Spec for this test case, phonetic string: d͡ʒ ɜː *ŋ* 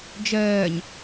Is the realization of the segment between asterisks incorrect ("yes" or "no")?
yes